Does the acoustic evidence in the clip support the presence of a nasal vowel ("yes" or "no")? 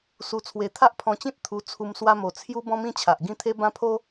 yes